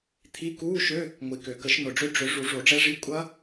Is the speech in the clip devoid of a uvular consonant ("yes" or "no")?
yes